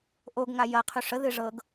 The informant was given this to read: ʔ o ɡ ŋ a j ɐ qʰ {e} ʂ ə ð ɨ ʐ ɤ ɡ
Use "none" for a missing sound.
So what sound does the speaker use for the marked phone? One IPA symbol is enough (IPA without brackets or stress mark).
y